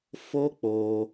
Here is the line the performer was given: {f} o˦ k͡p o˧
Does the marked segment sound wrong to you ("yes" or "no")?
no